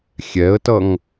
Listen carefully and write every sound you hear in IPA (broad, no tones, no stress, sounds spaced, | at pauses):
xʲ ɛ ə̯ t ʌ ŋ